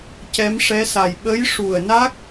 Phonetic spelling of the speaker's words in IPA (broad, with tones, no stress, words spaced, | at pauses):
cɛ˧˥mʂɛ˧˥sa˨˩j ɓə˧˥jʂu˨˩ə̯na˦˥k̚